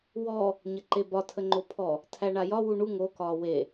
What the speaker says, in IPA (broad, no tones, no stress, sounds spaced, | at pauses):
w ɔ | ɲ ə ǃ e b ɒ tʰ ə ŋ͡ǃ o pʰ ɔ | tʰ æ ɳ a j ɒ w u ɳ u ŋ o k ɒː w e